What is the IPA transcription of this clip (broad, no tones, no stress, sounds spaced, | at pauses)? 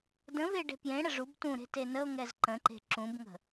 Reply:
d ə̃ v e ɖ e̤ p j ẽ ɽ ə ʐ u b t ũ ɾ e̤ t e n ə o̯ ŋ ɛ z ǃ ə̃ ǃ e̤ ǁ ũ b ŋ ə̤